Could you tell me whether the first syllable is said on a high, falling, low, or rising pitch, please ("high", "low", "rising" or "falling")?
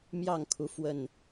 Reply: falling